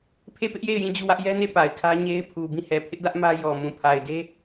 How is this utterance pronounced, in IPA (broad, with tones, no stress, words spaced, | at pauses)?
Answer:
pʰe˦˨pɪ˦ʔje˦˨ɪ̯ jĩ˦˨d͡ʑu˦˨wä˦ʔ jɛ˦ne˦˨ pa˨ɪ̯kʰä˦ ɲe˦ɪ̯pʰu˨ bĩ˦˨hɛ˨ pʰɪ˦ʔdä˦ʔ mä˦ jɔ˨ mũ˨pʰa˨ɪ̯de˦